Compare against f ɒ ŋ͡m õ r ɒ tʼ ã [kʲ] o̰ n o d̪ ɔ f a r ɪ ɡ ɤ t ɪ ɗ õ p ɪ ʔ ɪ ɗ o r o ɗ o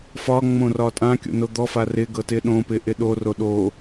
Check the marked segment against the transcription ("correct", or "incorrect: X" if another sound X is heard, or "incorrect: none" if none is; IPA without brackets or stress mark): correct